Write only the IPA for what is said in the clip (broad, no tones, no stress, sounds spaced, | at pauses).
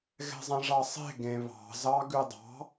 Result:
ɣ ɛ̤ zˤ ɛ̃ ʐ ɑ sˤ e̤ ɡ ẽ β ɑ̤ z ɑ ɡ ʉ dˤ ɑ̤